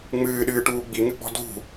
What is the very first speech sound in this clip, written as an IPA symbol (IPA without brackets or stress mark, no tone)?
ŋ͡m